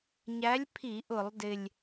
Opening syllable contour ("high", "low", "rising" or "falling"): rising